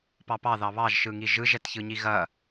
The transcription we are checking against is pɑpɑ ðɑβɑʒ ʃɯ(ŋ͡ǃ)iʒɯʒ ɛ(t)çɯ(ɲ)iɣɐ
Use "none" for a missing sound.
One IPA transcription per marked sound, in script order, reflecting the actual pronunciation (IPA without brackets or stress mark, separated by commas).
ŋ, t, ɲ